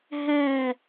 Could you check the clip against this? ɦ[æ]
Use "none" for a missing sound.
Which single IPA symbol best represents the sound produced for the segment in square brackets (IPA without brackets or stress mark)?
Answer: æ